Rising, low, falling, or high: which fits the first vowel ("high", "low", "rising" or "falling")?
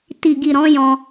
low